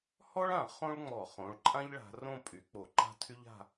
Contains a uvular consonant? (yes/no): yes